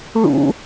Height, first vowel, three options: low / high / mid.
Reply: high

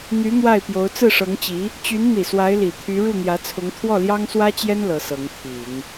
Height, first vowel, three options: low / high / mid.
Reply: high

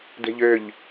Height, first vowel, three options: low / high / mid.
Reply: mid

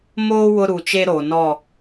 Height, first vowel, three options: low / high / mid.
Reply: mid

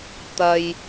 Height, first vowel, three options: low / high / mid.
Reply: low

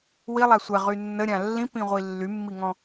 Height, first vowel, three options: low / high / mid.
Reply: high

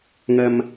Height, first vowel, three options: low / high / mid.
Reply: low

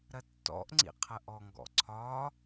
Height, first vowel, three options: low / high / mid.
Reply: low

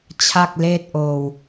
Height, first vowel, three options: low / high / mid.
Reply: low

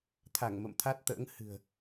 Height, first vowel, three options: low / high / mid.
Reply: low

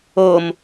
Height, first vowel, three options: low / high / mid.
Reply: mid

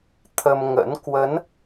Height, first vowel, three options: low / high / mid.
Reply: mid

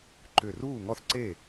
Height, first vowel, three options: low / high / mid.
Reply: high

